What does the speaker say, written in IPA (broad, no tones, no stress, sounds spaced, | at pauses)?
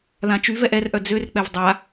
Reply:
ð ã t͡ʃ y v ɛ ʔ ɛ r ʔ œ d͡z ø r k͡p ɛ v dˤ a